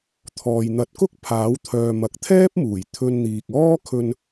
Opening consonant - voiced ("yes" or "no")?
no